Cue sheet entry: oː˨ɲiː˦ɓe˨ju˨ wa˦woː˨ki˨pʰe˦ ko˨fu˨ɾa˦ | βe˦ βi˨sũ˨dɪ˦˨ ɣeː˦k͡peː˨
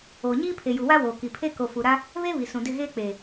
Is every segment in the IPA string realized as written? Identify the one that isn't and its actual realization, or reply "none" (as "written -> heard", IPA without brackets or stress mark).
ɓ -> pʰ